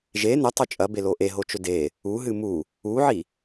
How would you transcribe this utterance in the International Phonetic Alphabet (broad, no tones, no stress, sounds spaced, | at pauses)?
ʒ e n ɵ tˤ ʉ t͡ʃʼ ɐ b e l o ʔ e ɦ o t͡ʃ ɵ d e | u ɦ ɨ m u | u ʕ i